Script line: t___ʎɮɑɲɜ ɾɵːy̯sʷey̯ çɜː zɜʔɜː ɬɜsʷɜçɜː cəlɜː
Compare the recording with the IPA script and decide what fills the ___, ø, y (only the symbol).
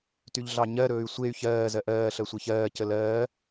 y